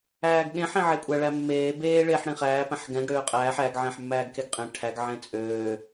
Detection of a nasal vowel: present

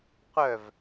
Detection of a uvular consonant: present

